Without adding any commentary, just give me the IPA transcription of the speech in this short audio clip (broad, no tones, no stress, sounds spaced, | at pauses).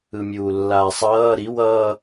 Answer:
ɯ mʲ uː lː aː sˤ ʌː ɾ i w ʌː